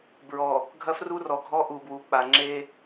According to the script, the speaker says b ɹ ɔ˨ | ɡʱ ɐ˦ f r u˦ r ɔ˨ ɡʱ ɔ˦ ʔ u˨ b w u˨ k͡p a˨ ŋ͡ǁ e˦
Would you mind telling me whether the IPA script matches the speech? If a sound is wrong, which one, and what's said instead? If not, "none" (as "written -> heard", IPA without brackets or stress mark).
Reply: none